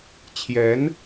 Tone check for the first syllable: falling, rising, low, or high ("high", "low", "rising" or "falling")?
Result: rising